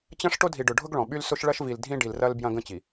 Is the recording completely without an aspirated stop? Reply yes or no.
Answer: yes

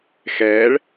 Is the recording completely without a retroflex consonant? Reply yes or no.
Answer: no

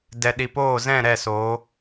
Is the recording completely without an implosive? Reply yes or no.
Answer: no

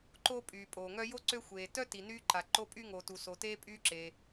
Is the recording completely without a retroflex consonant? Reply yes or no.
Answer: yes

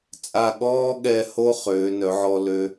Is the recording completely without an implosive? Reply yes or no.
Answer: no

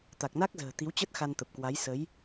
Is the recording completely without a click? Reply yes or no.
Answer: yes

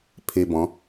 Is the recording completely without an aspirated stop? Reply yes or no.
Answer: no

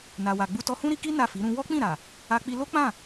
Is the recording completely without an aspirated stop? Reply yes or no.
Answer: yes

